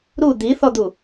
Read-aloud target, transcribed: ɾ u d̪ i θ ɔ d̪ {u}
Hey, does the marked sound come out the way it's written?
yes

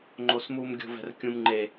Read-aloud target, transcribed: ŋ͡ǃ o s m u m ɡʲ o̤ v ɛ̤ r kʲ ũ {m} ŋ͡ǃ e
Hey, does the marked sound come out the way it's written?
yes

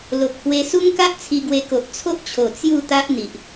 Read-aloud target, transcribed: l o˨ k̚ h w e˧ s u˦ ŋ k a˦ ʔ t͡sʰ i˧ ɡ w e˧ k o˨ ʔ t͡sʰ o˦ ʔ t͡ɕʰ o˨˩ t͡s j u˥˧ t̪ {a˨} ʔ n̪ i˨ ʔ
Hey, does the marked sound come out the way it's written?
no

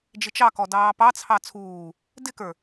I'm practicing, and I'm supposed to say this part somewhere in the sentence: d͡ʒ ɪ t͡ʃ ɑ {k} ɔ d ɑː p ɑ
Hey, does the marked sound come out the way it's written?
yes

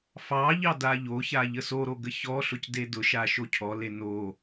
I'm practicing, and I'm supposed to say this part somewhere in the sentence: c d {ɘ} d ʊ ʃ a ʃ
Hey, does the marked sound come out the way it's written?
no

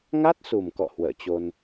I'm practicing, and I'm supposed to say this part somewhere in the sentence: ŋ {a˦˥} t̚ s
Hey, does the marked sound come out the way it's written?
yes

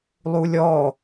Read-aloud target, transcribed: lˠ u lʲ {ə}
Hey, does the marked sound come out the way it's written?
no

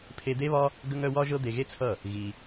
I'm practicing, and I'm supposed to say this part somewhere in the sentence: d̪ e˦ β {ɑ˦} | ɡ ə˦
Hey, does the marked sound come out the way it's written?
no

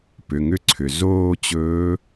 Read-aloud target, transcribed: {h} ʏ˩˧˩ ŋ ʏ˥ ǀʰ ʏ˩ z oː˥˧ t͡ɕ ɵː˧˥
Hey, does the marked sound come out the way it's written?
no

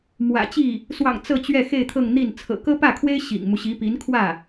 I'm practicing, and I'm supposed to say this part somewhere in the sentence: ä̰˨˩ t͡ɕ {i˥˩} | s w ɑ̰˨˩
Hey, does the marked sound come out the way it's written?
yes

